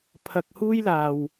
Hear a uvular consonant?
no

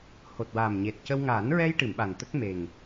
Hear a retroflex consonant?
yes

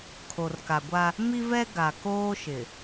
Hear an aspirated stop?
yes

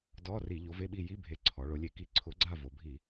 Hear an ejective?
no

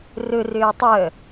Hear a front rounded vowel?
yes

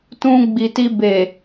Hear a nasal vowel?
yes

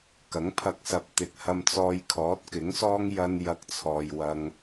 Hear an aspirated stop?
yes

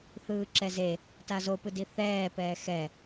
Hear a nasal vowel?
no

